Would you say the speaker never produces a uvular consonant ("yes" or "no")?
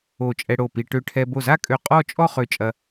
no